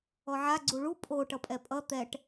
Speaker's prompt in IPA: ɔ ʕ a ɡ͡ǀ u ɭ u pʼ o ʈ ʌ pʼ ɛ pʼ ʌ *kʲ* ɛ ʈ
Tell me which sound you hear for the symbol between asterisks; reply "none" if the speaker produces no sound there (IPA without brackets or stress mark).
t̪